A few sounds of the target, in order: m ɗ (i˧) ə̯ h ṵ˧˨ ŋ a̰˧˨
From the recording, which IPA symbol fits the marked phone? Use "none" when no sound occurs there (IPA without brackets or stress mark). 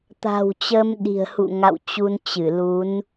i̤˨˩